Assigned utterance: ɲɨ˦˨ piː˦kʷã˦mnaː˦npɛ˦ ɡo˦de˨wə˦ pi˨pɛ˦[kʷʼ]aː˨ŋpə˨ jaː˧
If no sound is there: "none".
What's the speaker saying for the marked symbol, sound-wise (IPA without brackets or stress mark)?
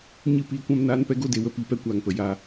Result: kʷ